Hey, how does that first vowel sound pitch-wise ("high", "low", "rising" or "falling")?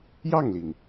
falling